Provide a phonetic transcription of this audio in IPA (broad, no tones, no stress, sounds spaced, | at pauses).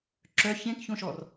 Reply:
ǁ œ ç ẽ k ç õ ʃ ɔ r